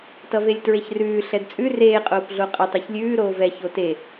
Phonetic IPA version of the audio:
t ʌ v e lʲ t ɹ e ç r ʉː ɬ ɛ d t͡sʼ ʉ r eː qʼ oː p ɮ o qʼ ə tˤ e ç lʲ ʉː ɾ oː v ɛ ç o t e

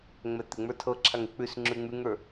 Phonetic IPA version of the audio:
ŋ͡m ɛ t̪ ɪ ŋ͡m ə˞ tʰ ɤ ǁʰ a ŋ ɪ k͡p ʉ s ŋ͡ǁ ʉ ŋ͡m ʉ ŋ ə˞

